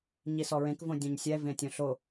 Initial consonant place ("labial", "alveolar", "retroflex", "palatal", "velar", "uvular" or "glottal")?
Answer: palatal